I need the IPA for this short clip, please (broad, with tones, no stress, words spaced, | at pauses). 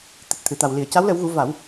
t̪ɨ˨˩t̚t̪ʰɨ˨˩˨t̪a˨˩w li˨˩˨ə̯ca˧˥wlə˨˩˦wɣu˨˩˦ va˨˩˦w